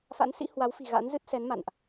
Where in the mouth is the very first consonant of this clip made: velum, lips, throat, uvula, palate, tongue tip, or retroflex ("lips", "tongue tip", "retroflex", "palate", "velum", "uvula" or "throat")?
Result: lips